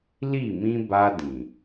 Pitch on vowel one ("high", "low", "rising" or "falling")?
falling